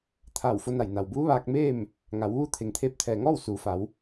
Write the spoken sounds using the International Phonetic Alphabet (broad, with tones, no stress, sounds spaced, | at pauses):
t̪ʰ aː˧˩ w f o˧ n a˧˩ j n a˩ w b uː˧˥ ʋ aː˧ k̚ m eː˥˨ m | ŋ a˩˧ w ʋ u˧˥ t̪ʰ e˩ ŋ t̪ʰ eː˧ p̚ t̪ʰ ɛː˩ ŋ ɔː˥˨ w s uː˩˧ f a˩˧ w